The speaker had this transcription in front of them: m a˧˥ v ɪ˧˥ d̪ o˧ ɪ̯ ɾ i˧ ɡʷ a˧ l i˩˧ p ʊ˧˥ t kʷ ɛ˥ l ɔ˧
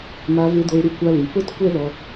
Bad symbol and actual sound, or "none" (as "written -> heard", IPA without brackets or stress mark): ɡʷ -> kʷ